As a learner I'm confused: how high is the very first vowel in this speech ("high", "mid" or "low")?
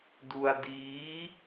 high